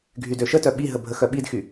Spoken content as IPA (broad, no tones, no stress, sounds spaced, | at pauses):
ɡʱ y d ø ʃ ə t œ ɓ i ɦ ə bʱ ə x œ ɓ i d x y